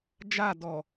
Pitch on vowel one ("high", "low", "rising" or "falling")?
falling